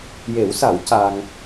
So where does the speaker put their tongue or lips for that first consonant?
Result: palate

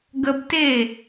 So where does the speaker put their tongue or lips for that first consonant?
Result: velum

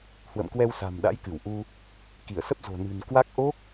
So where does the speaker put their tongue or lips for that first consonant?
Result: throat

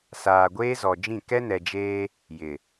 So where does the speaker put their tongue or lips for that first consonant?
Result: tongue tip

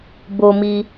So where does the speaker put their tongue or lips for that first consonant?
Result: lips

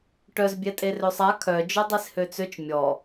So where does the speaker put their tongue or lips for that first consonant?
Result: retroflex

